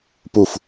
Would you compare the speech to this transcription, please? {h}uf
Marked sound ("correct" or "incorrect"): incorrect